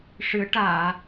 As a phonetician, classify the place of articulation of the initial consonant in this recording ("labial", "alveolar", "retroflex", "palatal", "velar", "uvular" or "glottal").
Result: retroflex